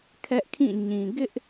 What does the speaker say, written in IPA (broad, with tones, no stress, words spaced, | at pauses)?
kʰɛ˦ʔkʰĩ˦˨ɲĩ˨ ɡɪ˦ʔ